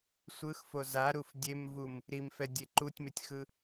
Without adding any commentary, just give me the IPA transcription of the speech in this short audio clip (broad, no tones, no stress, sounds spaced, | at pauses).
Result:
sʷ ɯ x f o z a ɾ u f dʲ e m v u m | ɾ i m f ɛ dʲ e ǃ u tʲ m e tʲ x ɯ